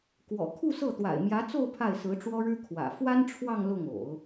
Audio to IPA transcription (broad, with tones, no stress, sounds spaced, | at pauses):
k w ɔ̰˨˩ kʰ u˥˧ s ɤ˥˩ t̪ w a̰˨˩ ɪ̯ m j ä˧˥ t͡s o˥˧ ʊ̯ pʰ a˥˩ ɪ̯ s ɹ̩˧˥ ʈ͡ʂ w ɔ˥ ɻ ɻ̩˥ kʰ w ä̰˨˩ f w a˥ n ʈ͡ʂʰ w ɑ˥˧ ŋ l ʊ˥˩ ŋ o̰˨˩˦ ʊ̯